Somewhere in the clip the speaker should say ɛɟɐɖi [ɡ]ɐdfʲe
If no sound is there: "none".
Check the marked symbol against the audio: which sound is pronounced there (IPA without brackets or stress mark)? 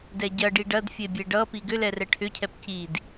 ɖ